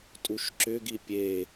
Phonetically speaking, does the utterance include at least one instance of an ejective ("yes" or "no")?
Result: yes